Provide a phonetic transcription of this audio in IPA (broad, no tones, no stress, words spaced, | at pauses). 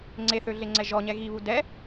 ŋ͡ǀeθøɮeŋ͡ǀɛ ʒɔɲɛ ɣiβu dɛ